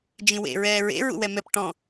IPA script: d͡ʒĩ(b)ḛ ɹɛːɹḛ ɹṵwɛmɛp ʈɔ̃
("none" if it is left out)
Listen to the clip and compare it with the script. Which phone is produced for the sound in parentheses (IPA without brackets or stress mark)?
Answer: w